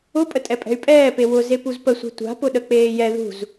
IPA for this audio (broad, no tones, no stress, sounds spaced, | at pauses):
ʊ pʼ ə tʼ ɛ pʼ ɛ̤ y̯ pʼ ɛː p e w ʊ z e p u z p ə sʷ e̤ tʷ a̤ p ʊ ɗ ə k͡p eː j ɛ ð ṳ z